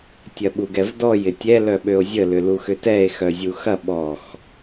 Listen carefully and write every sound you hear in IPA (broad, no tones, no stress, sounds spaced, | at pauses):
tʲ ɐ ɓ u ɡ ɛ v d ɔ j ɪ tʲ ɛ l œ ɓ ø o̯ zʲ ə l ʏ l u x ʏ t ɛ e̯ x œ zʲ u x ɐ ɓ ɔ x